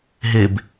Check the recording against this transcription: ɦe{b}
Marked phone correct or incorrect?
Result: correct